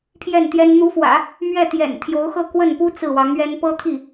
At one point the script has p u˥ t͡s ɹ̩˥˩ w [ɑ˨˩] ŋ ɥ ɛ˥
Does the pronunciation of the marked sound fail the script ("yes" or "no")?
yes